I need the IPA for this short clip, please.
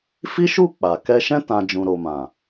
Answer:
fi˦ʃu˦˨ k͡pa˨ kɛ˧ʃɛ̃˦ tã˧ d͡ʒũ˨ɾo˨mã˨

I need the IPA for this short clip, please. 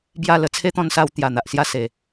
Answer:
bja˥˧lə˧ t͡sʰe˦t̪ɔ̃˧nsa˧w t̪ja˨˩n̪a˨ʔsja˥˧ se˨˩

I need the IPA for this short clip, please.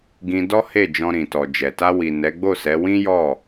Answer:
ɡĩ˧dɔ˦he˦˨ d͡ʒɔ̃˧ɾĩ˨tɔ˨d͡ʒɛ˨ ta˧wi˨ nɛ˨˦ɡ͡bo˦˨sɛ˨˦ wĩ˦jɔ˦˨

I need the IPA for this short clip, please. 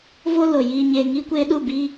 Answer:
vo˦ lo˨ jiː˨ɲeː˨ ŋiː˧kʷeː˧ɗu˦˨ bi˦

